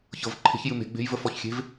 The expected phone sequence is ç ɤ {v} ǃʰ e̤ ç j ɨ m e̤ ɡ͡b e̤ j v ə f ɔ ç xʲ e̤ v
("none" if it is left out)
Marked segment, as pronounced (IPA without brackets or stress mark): v